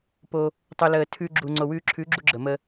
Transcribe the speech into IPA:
p o˧ | tˤ u˧ l əː˧ tʰ ʉ˧ ɡ͡ǁ u˨ ŋ͡ǀ o˨ w ʉː˧ ǁʰ ʉ˨˦ ɡ͡ǁ u˧ ɡ͡ǁ ə˨ m ə˧

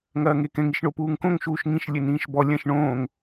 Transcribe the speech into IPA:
ŋ ɐː ŋ e k ɛ̃ ŋ i ʃ ɳ o p uː ŋ k õ ŋ ʃ uː ʃ ŋ ĩ ʃ lʲ ɘ n ĩː ʃ b ɔ lʲ ɐ̃ ʃ ɳ õː ŋ

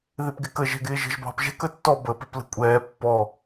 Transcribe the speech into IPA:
ð ɪ p ɡ ɪ k ə ʒ ɛ̤ ɡ ɪː ʒ ə̤ ʒ b ɑ̤ p ʒ ɛ̤ k ə tː ɔ b əː p ɪ p l ə̤ kʷʼ ɛː pː ɔ

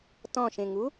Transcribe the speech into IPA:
t ɔ̃ ʃ ẽ ŋ u

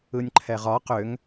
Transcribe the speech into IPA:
ɯ nʲ ǃʰ ɛ ʁ ɒ q ʏ ŋ

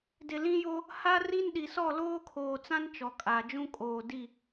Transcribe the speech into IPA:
d ɪ˨ l ĩ˦ j o˦ | h a˦ r i˦ n ɗ i˨ s ɔ˦˨ l oː˦ kʰ oː˨ t͡s ã˦ n t͡ʃ ɔ˨ kʼ a˨ d͡ʒ ũ˦ kʼ oː˨ d i˦˨

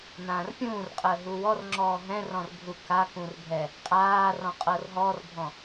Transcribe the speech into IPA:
n ãː r pʲ ũː r qʼ əː ɦ u w ɔ r ŋ͡ǁ ɔː ɦ ɛ̃ r ɔ̃ r bʱ u k a k ũ r bʱ ɛ | qʼ aː r ɔ̃ qʼ ɤ r ɦ ɔ r bʱ ɔ̃

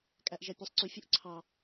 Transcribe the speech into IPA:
kʼ æ ʔ ʒ æ pʲ e sˤ ǀ y fʲ o ʔ ǀʰ ɑ

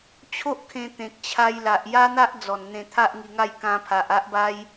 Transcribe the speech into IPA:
t͡ɕʰ o˦ ʔ kʰ ẽ˧ t̪ ẽ˨ k̚ t͡ɕʰ a˧ j l a˨ ʔ j a˦ n̪ a˦ ʔ d͡z ɔ˨˩ n n̪ ẽ˧ t̪ʰ a˦ ʔ ŋ i˧ ŋ a˥˧ j k ã˧ pʰ a˨ ʔ a˦ ʔ b a˦ j

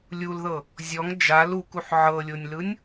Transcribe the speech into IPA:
lʲ u l ð ɤ | zʲ ɔ ŋ d͡ʒ a l u k u ħ ʕ ɤ lʲ o nʲ l ɯ nʲ

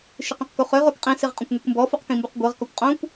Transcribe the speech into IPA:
ʃ ɨ q õ q k u χ ø ʁ o k qʼ ĩ s i ʁ qʼ õ kʷ ŋ ø kʷ m b ɔ f u q k ĩ m b u q ɡʷ e ʁ k ɔ kʷ qʼ õ kʷ

